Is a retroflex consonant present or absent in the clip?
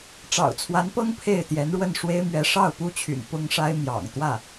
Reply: present